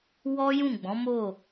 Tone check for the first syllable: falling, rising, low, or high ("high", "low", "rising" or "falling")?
high